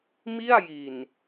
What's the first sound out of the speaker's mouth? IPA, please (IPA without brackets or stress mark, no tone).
m